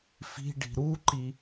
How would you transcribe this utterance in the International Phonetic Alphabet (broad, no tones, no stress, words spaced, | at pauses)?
fi̤ɖi̤ ɾuǃi